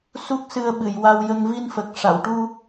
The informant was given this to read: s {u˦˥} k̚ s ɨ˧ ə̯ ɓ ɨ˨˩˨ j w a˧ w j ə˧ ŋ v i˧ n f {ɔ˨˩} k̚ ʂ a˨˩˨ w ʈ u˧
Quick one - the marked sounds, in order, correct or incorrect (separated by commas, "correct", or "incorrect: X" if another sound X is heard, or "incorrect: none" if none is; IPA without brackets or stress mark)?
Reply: correct, incorrect: ə˨˩